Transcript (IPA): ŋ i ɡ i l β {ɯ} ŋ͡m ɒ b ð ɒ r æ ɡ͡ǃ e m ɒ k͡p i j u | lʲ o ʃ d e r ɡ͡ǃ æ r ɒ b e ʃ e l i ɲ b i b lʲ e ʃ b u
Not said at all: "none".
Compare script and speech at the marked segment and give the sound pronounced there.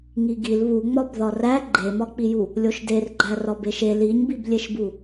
u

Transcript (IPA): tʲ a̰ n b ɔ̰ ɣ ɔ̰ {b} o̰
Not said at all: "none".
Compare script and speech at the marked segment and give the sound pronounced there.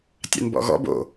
b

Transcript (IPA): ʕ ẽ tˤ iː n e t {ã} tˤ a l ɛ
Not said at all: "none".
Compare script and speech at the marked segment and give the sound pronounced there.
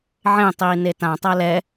ã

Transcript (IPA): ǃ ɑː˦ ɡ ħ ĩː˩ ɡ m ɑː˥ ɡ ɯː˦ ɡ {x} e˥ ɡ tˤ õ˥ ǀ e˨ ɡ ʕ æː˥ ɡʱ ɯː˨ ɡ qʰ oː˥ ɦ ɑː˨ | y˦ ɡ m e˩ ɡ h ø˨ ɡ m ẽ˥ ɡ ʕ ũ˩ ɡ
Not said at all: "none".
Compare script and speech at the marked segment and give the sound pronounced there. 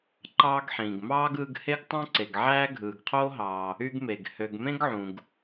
h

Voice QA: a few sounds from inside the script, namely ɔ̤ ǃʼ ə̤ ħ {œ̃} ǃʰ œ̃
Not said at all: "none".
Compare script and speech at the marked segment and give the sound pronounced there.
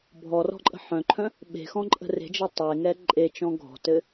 œ̃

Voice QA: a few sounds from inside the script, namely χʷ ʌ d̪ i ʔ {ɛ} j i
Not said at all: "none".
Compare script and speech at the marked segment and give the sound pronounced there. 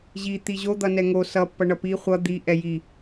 ɛ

